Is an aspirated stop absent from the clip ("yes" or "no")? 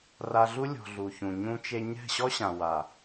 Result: yes